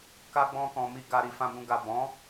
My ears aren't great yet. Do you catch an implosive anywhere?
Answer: no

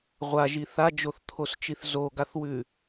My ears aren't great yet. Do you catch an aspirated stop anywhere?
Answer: yes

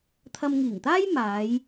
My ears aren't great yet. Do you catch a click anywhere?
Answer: no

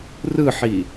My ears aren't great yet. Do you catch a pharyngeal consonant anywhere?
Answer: yes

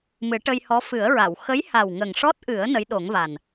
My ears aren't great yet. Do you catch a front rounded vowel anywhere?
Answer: no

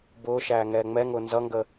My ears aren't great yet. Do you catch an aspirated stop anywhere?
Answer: no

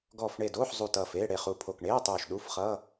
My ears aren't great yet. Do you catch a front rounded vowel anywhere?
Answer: no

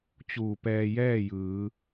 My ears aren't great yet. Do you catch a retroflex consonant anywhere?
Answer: no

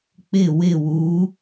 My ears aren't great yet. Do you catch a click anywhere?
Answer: no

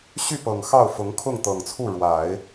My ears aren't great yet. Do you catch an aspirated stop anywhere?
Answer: yes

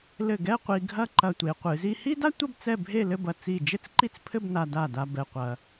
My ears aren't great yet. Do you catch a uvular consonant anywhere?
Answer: yes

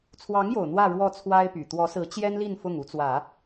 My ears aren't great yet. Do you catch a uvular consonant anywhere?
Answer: no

